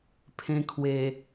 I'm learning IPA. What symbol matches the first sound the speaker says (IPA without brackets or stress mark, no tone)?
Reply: pʰ